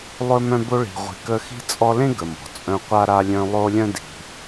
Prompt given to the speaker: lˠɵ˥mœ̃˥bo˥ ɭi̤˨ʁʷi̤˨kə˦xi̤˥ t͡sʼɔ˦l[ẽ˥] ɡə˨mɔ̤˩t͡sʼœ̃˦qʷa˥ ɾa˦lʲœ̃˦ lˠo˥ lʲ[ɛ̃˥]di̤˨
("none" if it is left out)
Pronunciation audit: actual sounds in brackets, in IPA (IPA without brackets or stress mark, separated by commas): ẽ˥, œ̃˥